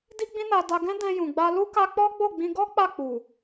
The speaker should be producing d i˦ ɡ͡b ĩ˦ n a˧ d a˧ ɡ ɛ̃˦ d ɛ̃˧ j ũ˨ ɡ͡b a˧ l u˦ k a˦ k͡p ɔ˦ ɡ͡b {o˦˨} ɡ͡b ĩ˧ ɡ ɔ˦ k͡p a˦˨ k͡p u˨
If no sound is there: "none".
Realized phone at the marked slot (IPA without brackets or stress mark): o˦˨